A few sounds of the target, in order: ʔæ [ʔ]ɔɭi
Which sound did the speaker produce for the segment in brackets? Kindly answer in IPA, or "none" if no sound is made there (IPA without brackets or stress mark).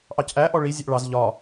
ʔ